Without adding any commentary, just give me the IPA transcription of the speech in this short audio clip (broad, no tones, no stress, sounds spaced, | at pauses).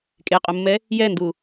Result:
kʼ e qʼ ʊ mː ɛ | j ɛ n d u